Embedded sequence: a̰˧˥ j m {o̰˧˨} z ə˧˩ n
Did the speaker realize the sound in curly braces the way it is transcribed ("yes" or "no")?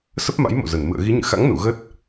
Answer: yes